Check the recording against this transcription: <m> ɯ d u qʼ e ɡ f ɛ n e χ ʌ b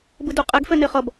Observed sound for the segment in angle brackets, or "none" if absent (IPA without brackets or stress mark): b